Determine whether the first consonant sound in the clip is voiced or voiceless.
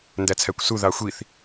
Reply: voiced